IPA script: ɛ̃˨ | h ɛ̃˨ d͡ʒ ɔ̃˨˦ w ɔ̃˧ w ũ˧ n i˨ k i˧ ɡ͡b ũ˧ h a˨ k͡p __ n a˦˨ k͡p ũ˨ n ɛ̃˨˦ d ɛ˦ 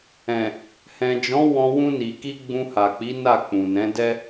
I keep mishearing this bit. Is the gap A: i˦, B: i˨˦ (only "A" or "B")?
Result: B